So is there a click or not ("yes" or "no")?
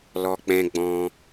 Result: no